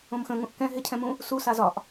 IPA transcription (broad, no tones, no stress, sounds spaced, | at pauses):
õ m x ə̃ ŋ ũ ʔ k ɛ̃ ɦ ɪ cʰ ɛ̃ m ũ | s u s a z ɒ ʔ